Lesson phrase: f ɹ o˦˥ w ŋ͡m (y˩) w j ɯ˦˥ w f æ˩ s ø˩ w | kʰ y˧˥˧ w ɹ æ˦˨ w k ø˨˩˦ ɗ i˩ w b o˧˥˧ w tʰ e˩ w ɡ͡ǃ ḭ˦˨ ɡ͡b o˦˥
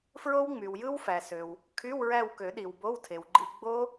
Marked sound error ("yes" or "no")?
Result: no